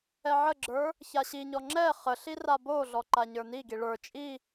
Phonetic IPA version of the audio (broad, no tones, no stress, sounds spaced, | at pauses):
ɛ ʕ ə ɡ͡ǁ ə˞ | ç a ɕ i ɲ ɔ ŋ͡ǁ ɛ χ ə ɬ i r a b o ɮ ɔ ǃ a ɲ ə˞ n i ɡ i ɭ ə˞ t͡ʃʼ i